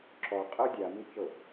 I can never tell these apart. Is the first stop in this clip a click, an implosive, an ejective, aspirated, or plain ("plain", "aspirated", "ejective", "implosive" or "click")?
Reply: click